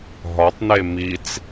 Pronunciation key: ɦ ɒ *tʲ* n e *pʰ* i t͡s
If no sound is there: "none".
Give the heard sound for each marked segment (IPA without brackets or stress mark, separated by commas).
tˤ, m